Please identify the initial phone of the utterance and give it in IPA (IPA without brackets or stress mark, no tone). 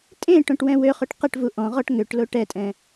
tʼ